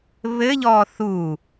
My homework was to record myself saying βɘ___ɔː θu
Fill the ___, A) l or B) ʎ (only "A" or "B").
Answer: B